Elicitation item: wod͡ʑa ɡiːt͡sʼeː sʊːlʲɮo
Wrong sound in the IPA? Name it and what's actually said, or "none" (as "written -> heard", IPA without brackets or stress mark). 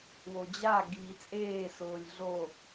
none